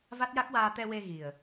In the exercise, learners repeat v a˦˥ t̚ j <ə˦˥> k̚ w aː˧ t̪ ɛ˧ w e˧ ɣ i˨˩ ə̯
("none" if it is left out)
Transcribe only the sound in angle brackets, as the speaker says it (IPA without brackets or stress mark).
a˦˥